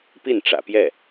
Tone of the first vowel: falling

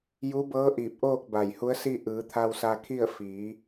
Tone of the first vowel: rising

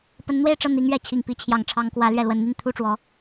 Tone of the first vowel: rising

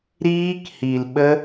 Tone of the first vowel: high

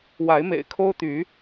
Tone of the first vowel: rising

